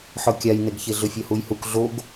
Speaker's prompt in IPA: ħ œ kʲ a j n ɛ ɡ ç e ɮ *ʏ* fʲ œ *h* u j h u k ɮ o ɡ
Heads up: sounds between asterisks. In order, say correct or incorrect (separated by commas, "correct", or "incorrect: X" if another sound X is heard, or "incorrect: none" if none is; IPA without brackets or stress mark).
correct, correct